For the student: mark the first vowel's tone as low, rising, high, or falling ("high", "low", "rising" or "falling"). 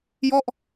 falling